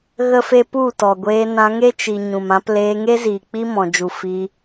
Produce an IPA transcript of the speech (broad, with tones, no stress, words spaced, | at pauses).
ɣə˦fe˦ pu˦˨tɔ˨ɡʷeː˧ nã˧ŋe˦t͡ʃi˨ ɲũ˨mã˧pleː˧ ŋe˦ziː˨ k͡pi˦mɔ̃˨ d͡ʒu˨ fi˧